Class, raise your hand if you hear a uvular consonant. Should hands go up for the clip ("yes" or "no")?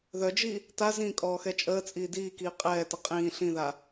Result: yes